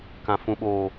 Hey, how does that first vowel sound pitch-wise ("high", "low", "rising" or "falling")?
low